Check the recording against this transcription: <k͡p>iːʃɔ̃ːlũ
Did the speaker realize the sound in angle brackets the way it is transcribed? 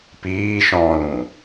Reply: no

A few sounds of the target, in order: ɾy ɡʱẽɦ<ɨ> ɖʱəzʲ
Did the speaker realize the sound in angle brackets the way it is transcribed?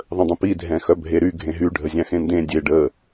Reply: no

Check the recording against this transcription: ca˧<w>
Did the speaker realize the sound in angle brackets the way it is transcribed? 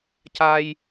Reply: no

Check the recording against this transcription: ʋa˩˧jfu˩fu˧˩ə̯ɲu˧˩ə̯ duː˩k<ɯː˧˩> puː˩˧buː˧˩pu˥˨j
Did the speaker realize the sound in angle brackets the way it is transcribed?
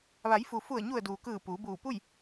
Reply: yes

